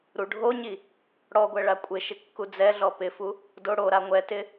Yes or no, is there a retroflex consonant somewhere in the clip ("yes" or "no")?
yes